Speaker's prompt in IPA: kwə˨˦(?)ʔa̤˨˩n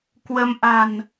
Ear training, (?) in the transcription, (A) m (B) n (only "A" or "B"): A